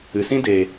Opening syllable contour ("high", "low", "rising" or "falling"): low